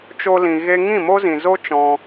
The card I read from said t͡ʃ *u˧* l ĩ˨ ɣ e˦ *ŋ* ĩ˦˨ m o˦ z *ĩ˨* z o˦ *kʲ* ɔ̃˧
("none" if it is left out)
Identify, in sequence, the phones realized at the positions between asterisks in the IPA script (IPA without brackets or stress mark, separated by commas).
o˧, ŋ, ĩ˨, t͡ʃ